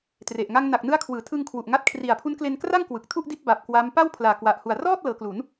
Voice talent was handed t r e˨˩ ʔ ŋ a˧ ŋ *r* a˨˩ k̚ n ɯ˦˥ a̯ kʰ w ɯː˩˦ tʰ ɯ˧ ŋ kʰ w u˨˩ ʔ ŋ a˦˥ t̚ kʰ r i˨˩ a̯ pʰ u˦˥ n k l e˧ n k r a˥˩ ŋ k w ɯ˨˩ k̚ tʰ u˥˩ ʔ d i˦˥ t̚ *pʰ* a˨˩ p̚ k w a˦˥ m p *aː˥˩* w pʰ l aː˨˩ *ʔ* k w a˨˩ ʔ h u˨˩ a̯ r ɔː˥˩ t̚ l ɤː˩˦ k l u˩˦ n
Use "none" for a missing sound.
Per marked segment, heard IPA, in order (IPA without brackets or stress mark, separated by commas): n, b, a˥˩, none